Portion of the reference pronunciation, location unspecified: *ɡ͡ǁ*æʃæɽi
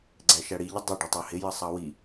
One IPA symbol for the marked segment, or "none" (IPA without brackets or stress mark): ɡ͡ǀ